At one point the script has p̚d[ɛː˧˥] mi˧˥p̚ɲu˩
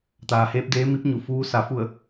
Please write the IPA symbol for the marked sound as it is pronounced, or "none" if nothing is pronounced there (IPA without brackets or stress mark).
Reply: eː˧˥